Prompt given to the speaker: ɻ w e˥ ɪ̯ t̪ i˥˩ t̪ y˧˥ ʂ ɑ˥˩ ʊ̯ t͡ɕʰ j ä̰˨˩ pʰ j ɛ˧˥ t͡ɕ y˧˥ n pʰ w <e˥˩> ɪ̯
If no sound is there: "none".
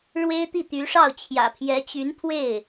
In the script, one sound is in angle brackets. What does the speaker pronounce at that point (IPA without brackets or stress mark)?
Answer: e˥˩